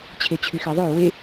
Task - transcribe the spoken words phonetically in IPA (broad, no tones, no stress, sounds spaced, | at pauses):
t͡ɕʰ e t͡ɕʰ y x e ðˤ ø w e